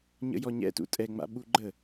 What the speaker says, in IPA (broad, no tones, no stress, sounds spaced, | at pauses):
ɲ ə̰ j ɔ ɲ ɛ̰ t ṵ tʼ ɛ ŋ͡m a̰ ɓ u ɡ͡ǃ ə